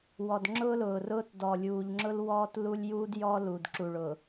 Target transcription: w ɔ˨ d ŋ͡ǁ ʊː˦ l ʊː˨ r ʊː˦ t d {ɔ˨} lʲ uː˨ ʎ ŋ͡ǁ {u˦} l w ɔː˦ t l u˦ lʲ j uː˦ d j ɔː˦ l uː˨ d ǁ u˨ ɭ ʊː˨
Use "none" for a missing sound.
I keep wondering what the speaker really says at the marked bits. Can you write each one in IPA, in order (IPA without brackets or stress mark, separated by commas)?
ɔ˨, ʊ˦